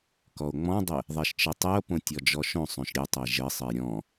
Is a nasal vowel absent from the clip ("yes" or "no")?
no